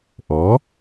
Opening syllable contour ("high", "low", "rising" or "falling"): rising